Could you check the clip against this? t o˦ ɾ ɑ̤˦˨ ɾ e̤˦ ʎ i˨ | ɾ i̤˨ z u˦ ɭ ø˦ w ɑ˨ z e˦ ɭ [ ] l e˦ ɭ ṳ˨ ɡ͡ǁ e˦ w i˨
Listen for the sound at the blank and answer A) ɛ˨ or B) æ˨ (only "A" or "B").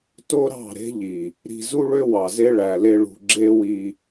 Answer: B